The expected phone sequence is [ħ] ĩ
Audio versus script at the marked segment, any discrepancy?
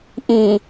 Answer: yes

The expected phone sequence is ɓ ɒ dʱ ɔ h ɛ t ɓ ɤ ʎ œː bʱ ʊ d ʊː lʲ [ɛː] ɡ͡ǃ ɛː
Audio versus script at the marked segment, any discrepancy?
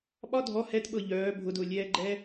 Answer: no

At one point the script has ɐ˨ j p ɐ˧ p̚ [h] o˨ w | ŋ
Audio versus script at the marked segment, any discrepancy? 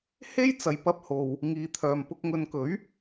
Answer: no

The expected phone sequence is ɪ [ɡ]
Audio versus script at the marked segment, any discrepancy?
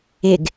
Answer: no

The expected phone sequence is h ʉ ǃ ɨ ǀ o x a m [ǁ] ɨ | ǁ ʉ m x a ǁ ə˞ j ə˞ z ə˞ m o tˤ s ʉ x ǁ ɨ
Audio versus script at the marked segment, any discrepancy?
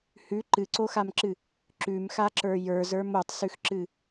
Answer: no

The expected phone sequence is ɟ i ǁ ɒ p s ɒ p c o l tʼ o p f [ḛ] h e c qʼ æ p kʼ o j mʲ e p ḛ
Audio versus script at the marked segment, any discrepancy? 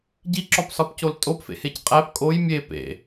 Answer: no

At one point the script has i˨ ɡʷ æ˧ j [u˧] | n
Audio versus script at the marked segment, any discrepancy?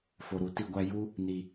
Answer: yes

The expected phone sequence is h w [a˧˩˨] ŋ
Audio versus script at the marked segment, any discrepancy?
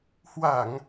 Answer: no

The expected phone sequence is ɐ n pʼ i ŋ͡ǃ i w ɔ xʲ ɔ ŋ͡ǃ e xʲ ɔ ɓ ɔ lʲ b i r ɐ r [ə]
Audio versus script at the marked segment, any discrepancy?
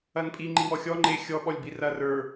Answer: yes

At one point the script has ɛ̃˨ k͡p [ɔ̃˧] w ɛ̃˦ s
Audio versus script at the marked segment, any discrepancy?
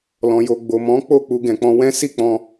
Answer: no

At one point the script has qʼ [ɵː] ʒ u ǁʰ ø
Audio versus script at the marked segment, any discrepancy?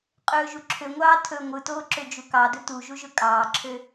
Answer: no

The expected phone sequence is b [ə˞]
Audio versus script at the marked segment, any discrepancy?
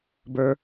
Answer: no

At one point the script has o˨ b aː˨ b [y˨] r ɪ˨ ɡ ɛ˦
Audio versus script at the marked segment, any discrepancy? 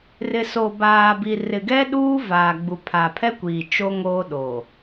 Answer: yes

